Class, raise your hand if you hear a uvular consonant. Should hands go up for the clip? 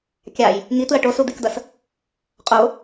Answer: yes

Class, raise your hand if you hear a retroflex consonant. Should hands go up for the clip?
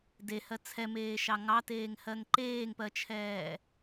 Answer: no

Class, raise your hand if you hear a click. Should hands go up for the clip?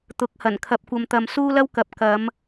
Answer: no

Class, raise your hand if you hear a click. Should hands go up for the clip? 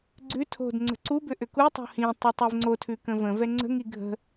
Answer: yes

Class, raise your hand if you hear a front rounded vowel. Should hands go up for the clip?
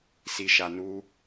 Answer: no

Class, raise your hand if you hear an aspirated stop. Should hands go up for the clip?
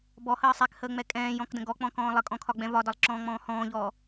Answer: yes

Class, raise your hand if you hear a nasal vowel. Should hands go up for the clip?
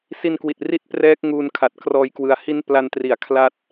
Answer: no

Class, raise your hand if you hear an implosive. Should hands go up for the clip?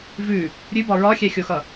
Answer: no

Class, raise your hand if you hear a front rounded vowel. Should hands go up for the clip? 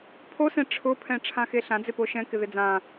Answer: no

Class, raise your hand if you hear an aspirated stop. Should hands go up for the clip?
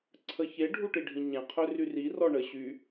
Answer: yes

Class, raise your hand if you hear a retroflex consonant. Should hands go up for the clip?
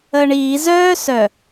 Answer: yes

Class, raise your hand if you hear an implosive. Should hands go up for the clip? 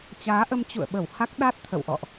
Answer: yes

